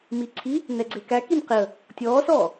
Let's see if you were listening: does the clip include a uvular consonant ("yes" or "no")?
yes